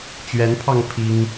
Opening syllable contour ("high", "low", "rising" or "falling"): rising